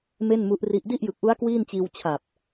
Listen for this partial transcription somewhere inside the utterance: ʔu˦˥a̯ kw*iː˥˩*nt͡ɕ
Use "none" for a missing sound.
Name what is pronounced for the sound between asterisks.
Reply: iː˥˩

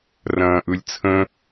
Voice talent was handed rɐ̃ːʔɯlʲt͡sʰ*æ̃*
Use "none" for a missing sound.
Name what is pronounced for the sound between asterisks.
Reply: ə̃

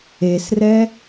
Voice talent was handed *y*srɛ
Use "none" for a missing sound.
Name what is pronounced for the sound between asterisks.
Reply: e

